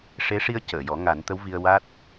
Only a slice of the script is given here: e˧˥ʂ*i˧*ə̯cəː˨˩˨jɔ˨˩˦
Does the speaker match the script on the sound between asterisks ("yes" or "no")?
yes